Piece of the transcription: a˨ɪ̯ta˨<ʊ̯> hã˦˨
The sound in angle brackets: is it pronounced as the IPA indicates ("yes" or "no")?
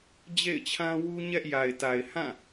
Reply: no